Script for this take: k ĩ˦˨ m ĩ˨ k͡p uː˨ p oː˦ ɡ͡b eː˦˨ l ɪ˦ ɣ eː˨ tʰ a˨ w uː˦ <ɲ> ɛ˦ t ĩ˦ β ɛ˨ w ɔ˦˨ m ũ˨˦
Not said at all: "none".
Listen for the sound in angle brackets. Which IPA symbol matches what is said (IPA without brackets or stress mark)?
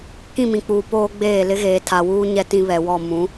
ɲ